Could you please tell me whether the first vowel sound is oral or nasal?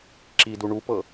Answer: oral